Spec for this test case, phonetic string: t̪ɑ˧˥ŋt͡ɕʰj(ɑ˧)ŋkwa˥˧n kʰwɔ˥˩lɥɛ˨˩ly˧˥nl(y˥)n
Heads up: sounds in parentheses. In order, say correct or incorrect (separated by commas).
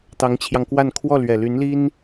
correct, incorrect